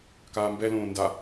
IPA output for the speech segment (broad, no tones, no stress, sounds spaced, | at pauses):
k aː m b ɛ l õː n d a